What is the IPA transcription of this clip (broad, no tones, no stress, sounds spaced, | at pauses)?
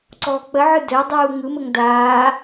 ǀ ɔː k͡p ə ʕ ɯ d œ dˤ uː ŋ ɯ m ə ŋ d aː